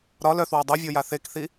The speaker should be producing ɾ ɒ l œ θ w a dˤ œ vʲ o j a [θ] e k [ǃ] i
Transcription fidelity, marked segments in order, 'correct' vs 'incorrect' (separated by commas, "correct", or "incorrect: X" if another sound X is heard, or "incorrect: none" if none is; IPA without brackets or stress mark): correct, incorrect: θ